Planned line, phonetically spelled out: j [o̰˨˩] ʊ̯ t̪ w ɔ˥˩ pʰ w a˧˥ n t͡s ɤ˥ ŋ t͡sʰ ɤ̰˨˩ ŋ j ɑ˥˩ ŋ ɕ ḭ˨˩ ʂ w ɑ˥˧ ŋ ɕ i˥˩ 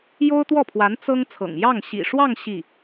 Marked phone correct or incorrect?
incorrect